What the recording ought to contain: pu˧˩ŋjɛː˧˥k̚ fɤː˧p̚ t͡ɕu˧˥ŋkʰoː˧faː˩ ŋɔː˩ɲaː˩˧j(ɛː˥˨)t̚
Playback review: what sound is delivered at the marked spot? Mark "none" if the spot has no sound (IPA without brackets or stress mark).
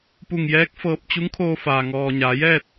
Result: ɛː˥˨